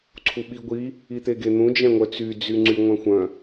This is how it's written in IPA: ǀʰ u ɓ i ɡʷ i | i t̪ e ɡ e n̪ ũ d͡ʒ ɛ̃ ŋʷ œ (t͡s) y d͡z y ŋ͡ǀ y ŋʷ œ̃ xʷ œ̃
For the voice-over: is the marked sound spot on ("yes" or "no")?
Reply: yes